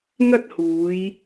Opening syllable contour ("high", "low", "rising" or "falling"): high